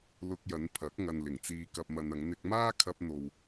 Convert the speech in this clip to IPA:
l ʊ˧ k̚ j ɐ˨˧ n pʰ ɐ˨˥ k̚ ŋ ɐ˨ n l ɪ˨˩ ŋ t͡s iː˧ k ɐ˧ p̚ m ɐ˧ n ɐ˨˧ ŋ n̪ ɪ˧ k̚ m aː˥ kʰ ɐ˧ p̚ n̪ o˨ w

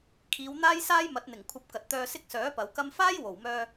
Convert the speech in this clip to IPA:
kʰ iː˨˧ w n̪ aː˥ j s aː˥ j m ɐ˨˥ t̚ n̪ ɪ˨˩ ŋ kʷʰ ɐ˧ p̚ k ɐ˨ t̚ t̪ œː˧ s ɪ˥ k̚ s œː˨˥ p ɐ˨˧ w k ɐ˥ m f aː˥ j w o˨˩ w m œː˧

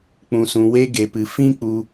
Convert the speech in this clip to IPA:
k͡p ũ˧ s ũ˧ w e˦ ɡ e˧ p ɨ˧ f ĩ˦ k͡p u˧

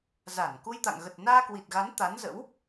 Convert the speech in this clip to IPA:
z a˧˩ n k u˧ j t̪ a̰˧˨ ŋ ɣ ə˨˩ t̚ n aː˧ k w i˨˩ t̚ ɣ a˨˦ n t̪ a˨˦ n z ə̰˧˥ w

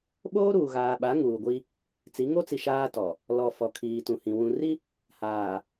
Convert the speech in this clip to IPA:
ɓ oː˦ ɾ uː˨ ɣ aː˨ ɓ a˨˦ ŋ uː˨ ɡʷ i˦ | t͡s i˨˦ ŋ o˦ t͡s i˨ ʃ aː˦ t ɔ˨ | l ɔ˨ f ɔ˨ kʰ iː˨ t ũ˨ h ĩ˨ w ũ˨ r i˦ | h aː˨

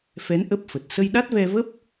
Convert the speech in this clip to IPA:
f ɛ˨˦ n ʔ ə˦˥ p̚ f ə˨˩ t̚ s ə˧ j ɗ a˦˥ t̚ v ɛ˧ v ə˦˥ p̚

